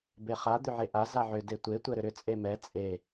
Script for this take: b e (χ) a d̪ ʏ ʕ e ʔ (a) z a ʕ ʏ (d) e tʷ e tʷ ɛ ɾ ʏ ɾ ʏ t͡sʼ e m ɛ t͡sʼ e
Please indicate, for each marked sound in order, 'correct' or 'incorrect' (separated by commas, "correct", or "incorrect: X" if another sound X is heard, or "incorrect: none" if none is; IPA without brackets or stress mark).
correct, correct, correct